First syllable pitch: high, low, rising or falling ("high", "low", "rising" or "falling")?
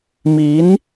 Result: rising